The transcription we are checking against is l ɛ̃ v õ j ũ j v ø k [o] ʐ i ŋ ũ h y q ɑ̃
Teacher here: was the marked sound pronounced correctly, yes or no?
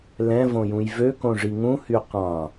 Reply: no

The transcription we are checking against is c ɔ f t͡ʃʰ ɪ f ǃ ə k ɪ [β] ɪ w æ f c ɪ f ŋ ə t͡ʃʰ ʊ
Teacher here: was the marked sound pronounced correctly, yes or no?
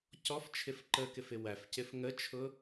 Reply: no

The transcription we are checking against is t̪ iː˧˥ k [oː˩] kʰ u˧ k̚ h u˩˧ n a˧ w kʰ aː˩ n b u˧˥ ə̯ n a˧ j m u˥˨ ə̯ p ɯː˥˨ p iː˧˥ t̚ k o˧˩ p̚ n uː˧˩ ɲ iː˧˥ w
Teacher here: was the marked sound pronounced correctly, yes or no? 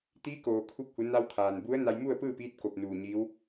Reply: yes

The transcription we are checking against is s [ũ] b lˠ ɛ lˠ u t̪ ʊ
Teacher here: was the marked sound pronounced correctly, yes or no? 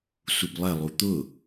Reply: no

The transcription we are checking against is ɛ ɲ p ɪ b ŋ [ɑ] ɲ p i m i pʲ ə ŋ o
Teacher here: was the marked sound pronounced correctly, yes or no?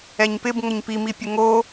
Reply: no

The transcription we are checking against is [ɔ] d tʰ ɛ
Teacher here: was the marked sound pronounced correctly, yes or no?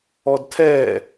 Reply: yes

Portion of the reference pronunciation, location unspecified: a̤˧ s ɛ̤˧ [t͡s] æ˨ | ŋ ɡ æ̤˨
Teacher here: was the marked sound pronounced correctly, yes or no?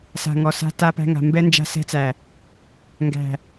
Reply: yes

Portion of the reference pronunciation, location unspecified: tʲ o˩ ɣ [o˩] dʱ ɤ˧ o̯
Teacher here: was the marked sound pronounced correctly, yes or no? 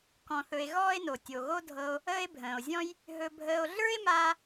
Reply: no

